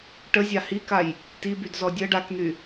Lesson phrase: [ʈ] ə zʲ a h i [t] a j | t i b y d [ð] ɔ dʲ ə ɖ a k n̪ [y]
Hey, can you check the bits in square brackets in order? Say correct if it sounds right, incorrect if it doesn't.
correct, incorrect, incorrect, correct

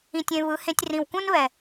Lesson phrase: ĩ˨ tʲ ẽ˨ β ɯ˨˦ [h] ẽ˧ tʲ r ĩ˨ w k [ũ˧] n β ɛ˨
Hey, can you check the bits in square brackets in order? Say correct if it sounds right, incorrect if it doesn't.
correct, incorrect

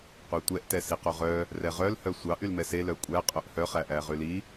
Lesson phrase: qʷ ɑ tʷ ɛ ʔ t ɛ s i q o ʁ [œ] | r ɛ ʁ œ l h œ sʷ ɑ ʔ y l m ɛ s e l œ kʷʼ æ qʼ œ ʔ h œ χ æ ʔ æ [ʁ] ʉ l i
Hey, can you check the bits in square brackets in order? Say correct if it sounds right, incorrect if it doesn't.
correct, correct

